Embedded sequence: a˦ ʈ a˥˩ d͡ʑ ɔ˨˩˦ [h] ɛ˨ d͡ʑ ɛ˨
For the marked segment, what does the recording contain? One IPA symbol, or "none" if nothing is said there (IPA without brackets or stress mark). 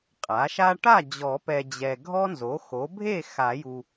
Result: p